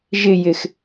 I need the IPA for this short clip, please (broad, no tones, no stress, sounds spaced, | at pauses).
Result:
ʒ ɪ j ɪ x